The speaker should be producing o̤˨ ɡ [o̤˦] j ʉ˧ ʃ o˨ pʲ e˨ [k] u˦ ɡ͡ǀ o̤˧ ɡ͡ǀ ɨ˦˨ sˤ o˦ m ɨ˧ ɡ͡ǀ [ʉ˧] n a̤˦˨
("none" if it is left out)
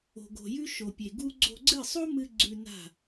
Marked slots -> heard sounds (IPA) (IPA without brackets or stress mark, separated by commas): o̤˨, ɡ, ʉ˧